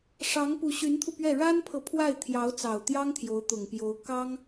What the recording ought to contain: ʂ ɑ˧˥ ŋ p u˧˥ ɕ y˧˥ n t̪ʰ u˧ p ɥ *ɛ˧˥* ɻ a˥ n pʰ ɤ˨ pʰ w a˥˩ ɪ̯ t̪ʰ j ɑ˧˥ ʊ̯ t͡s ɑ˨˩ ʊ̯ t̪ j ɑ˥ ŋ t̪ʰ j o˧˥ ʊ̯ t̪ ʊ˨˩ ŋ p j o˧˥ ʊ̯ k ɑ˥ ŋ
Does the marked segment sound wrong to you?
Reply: yes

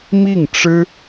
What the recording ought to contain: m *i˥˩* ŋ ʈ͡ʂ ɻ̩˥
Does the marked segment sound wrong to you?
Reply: no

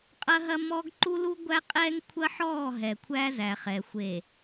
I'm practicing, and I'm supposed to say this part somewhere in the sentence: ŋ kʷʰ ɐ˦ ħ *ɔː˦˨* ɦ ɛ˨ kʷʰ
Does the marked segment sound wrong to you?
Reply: no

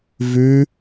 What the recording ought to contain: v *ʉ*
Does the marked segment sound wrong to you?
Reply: no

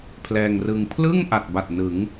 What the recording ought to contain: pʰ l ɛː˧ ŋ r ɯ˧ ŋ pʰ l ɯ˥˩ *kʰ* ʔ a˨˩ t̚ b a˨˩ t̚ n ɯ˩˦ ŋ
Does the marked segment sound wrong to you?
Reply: yes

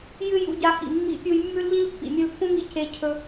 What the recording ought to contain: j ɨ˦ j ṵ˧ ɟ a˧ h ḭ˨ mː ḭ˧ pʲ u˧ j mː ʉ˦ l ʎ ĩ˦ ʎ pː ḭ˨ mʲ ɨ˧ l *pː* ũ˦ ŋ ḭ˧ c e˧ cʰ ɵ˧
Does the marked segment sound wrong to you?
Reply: no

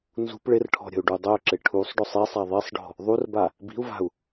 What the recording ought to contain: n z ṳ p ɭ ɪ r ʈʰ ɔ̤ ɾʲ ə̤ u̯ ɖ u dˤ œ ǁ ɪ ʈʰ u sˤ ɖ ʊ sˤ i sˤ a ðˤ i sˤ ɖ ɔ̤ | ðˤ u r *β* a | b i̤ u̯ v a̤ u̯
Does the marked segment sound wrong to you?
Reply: yes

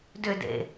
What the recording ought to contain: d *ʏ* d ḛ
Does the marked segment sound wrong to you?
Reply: no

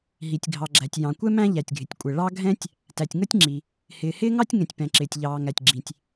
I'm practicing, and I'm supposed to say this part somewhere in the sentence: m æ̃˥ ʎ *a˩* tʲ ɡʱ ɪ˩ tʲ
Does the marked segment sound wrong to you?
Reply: yes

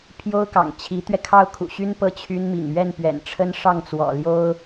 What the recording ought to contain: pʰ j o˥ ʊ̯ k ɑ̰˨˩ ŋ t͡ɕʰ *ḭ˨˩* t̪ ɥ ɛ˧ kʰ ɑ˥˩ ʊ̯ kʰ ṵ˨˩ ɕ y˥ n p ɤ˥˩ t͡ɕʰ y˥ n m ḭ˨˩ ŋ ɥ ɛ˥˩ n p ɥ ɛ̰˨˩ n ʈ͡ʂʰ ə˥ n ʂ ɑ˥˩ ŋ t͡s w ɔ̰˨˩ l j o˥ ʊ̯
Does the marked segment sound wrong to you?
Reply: yes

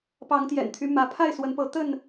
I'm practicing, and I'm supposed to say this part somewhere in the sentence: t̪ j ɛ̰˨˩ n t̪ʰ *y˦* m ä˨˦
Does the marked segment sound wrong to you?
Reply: no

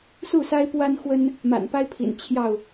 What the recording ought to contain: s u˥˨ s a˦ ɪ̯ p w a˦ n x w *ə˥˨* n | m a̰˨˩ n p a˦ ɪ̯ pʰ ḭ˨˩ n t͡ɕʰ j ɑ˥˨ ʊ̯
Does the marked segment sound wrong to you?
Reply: yes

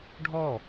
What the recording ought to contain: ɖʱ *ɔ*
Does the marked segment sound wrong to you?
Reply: no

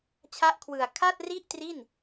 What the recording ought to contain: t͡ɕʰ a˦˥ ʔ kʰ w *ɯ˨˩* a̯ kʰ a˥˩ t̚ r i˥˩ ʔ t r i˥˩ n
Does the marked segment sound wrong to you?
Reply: no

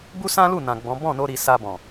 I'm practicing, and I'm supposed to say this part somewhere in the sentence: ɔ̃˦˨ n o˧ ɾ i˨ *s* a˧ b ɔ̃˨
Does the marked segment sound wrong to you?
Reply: no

